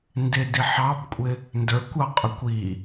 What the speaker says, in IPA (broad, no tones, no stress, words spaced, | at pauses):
ndɪdi ħɑbkʷʼɪ | ndə˞kʷɑqʼʊkʷ i